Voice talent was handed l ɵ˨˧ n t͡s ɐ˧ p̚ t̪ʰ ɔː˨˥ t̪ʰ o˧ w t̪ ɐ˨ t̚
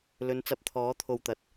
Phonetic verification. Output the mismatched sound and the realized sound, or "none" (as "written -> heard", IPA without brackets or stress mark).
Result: none